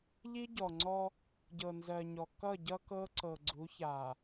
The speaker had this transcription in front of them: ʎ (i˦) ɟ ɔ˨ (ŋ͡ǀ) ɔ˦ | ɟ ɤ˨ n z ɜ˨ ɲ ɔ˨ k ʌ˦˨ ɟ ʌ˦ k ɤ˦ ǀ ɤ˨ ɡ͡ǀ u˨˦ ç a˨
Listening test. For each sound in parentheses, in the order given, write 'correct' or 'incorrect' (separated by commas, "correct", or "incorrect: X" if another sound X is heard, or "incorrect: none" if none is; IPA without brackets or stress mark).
correct, correct